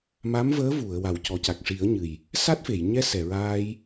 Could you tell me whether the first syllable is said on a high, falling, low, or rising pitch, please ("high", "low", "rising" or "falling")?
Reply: rising